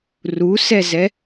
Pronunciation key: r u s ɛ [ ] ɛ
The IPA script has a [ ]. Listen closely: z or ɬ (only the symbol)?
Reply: z